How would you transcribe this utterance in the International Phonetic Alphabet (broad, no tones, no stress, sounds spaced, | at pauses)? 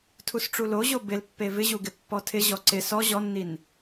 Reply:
tʰ u s ʈ͡ʂ u l o ʑ o b ɪ l pː e v ɪ ʑ u ɡ ɪ pː ɔ tʰ ɪ ʑ ɔ ǀ ɪ s ɔ ʑ ɔ nː i n